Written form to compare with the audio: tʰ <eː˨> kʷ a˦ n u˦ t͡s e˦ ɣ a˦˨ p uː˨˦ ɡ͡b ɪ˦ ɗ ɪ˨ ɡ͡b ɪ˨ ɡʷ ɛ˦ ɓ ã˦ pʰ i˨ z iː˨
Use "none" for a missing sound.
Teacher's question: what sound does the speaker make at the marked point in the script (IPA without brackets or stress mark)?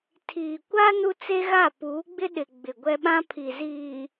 iː˨